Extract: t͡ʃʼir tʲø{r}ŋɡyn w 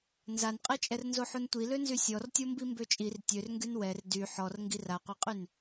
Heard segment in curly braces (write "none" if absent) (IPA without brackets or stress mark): r